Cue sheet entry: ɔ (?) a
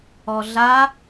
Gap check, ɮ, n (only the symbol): ɮ